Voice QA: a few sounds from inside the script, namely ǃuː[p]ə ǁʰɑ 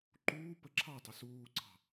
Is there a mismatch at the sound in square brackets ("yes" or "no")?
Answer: no